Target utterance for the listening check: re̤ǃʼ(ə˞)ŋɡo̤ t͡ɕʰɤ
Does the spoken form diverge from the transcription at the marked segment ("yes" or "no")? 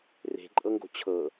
yes